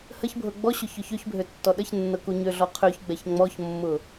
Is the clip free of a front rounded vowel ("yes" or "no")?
no